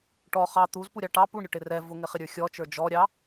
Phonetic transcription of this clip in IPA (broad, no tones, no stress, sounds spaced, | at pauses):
ʈ ɔ χ ɑ t̪ u z p u ɾʲ ɑ ʈ ɑ p u ɳ ɾʲ ʊ ʈ ɪ r ɛ v ʊ ŋ ɪ χ ɪ ɾʲ ə˞ xʲ ɔ t͡ʃ ə˞ d͡ʒ ɔ ɾʲ ɑ